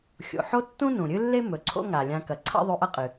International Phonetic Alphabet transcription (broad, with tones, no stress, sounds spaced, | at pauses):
xʲ o̰˩ ħ o˥ tː ũ˥ n ũ˩ ɾʲ ɨ˥ lː e˥ m ɵ˩ ǀʰ o̰˥ ŋ a˩ lʲ ã˧ k ɐ˩ ǀʰ a̰˥ ðˤ ʉ˧ ʔ ɐ˥ qʼ ɨ˩